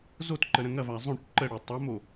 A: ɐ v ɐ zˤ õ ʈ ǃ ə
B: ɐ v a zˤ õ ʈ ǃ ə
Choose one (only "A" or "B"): B